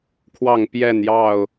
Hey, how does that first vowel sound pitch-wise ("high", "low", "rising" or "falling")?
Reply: falling